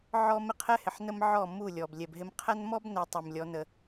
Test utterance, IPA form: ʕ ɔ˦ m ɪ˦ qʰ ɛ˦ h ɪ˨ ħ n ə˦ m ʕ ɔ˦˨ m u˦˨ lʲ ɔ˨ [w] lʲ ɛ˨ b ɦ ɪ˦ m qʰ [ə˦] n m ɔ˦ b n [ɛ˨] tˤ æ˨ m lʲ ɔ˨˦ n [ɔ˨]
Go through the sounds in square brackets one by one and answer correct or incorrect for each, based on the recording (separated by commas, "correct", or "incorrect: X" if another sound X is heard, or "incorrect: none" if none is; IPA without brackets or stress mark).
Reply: incorrect: b, incorrect: æ˦, correct, incorrect: ə˨